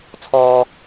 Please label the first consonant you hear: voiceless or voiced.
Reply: voiceless